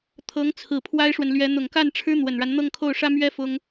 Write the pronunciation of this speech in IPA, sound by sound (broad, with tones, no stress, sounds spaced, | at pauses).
t̪ʰ ɤ˧˥ ŋ t͡sʰ ɹ̩˨˩ pʰ w a˥ ɪ̯ ʂ w ə˨ n l ɥ ɛ˧˥ n̪ ʊ˨˩ ŋ k a˥˩ n ʈ͡ʂʰ ɻ̩˥ n̪ w ə˨˩ n ɻ a˦ n n̪ ɤ˥˧ ŋ kʰ o˥˩ ʊ̯ ʂ ä˥ m ɥ ɛ˥ f ʊ˥ ŋ